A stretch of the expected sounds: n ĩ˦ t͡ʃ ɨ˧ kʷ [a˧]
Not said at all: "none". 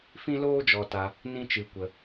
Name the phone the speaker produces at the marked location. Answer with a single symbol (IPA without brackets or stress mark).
ə˧